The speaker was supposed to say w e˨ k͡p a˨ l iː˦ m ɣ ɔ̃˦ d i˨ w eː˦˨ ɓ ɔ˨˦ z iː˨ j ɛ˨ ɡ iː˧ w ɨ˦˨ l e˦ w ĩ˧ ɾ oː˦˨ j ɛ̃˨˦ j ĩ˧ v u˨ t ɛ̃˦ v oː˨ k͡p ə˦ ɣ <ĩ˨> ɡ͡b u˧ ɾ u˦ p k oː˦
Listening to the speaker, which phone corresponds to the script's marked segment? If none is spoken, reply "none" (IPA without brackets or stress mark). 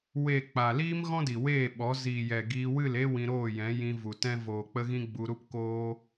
ĩ˦